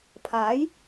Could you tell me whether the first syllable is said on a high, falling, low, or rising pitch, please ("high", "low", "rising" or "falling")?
rising